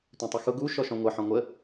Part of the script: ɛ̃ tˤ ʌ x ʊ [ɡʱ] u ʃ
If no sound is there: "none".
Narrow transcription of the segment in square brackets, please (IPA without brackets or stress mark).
ɡ